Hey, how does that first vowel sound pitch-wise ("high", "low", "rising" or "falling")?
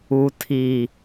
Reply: low